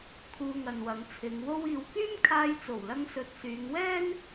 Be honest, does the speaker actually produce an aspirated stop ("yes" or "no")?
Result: yes